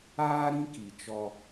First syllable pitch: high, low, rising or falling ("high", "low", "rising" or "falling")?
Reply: high